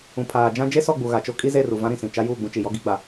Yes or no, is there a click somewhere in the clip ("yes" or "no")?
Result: no